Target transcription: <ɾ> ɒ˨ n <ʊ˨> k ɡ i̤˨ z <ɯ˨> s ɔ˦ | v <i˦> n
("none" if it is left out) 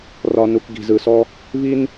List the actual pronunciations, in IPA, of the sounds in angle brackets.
r, u˨, ɯ˨, i˦

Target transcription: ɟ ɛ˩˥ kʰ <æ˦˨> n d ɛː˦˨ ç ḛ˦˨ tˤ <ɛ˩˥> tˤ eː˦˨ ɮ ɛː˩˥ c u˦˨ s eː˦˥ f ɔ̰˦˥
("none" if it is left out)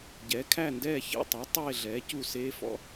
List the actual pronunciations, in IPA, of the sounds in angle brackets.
æ˦˨, ɛ˩˥

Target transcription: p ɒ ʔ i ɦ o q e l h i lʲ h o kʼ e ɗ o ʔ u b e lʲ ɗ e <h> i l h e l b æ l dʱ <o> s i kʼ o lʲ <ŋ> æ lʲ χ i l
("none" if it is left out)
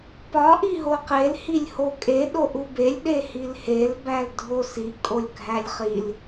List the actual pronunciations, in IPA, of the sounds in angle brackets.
h, o, ɡʱ

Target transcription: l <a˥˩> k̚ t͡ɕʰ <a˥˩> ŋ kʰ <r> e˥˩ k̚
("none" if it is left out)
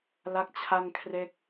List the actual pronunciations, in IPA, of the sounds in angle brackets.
a˥˩, a˥˩, r

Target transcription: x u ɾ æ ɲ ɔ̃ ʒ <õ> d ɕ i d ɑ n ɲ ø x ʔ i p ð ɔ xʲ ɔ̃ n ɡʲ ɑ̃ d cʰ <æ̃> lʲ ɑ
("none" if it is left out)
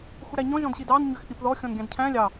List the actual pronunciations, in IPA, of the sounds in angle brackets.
ɔ̃, æ̃

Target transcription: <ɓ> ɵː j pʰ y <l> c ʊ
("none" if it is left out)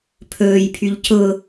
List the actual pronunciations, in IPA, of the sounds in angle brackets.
pʰ, ʎ

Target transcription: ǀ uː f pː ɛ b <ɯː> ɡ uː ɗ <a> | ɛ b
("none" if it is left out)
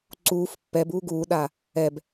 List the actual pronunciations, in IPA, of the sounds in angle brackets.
uː, aː

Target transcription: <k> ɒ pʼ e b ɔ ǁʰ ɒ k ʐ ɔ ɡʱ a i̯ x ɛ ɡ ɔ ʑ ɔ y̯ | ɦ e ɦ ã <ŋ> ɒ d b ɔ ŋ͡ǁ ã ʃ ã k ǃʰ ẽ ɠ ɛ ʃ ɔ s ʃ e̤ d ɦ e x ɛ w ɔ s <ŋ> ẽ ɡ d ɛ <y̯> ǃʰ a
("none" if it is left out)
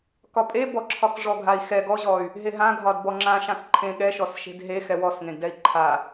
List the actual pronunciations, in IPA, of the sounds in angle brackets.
k, ɡʱ, ŋ, i̯

